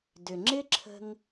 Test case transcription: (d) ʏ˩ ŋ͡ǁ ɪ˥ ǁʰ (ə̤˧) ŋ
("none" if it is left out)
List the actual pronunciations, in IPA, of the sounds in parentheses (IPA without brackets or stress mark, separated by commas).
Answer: d, ə̤˧